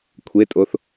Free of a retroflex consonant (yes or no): yes